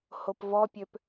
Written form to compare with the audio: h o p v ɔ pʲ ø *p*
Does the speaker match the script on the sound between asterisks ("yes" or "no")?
yes